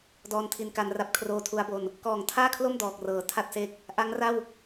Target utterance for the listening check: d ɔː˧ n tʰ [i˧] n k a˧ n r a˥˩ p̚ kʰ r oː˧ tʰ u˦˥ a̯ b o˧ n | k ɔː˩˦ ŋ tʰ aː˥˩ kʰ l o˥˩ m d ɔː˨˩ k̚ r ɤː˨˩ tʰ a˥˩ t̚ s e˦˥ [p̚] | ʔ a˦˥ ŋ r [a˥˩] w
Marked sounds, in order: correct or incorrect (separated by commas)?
correct, incorrect, correct